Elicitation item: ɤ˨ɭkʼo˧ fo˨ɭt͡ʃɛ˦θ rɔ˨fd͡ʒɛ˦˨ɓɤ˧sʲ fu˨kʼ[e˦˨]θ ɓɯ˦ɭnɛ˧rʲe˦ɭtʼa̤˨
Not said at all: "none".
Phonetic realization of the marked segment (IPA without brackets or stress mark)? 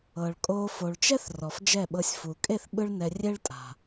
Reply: e˦˨